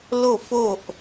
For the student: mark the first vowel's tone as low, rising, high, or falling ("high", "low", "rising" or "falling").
falling